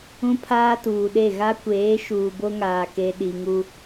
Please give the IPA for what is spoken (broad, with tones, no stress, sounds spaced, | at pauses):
ũ˦ pʰ aː˦ t uː˨ ɗ e˦˨ ɣ a˦ kʷ eː˨˦ ʃ uː˨ b o˦ ŋ aː˨ k e˨ ɗ i˨ ŋ u˦